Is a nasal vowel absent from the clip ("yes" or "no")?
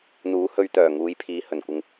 yes